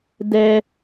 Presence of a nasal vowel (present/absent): absent